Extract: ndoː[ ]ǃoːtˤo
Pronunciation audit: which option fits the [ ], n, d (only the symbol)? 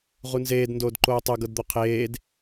d